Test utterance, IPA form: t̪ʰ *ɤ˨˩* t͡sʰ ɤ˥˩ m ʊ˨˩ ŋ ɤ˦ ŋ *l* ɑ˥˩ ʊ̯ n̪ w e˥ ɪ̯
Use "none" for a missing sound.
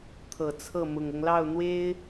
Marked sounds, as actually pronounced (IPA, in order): ɤ˨˩, l

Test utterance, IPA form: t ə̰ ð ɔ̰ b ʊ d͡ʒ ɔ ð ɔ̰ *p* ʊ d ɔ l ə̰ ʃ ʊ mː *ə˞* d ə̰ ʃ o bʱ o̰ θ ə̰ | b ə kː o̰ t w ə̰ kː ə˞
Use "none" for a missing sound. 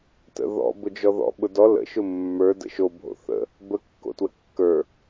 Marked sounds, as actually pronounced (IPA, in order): ɓ, ə˞

